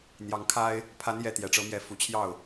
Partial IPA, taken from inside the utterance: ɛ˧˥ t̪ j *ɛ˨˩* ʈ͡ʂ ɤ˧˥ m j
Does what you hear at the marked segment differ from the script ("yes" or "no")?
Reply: no